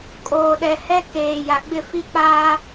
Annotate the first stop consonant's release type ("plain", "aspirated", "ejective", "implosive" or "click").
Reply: ejective